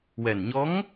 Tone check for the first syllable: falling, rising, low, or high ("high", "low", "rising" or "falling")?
low